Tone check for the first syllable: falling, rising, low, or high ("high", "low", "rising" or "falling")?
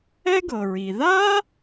high